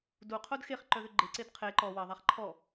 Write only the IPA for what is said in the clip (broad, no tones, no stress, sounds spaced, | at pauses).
d u qʰ o d x e χ ǃ œ ð ʏ ɡ͡ǃ ɪ ǀ e d qʰ e ǃ ɔ w ɐ ðˤ a χ ǃʰ ɔ